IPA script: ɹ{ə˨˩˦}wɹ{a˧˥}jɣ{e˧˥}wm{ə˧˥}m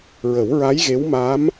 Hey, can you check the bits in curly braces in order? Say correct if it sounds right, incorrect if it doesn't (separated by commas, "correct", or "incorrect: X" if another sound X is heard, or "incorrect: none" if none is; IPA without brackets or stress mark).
correct, correct, correct, incorrect: a˧˥